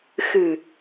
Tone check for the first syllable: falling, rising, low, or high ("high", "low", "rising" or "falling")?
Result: low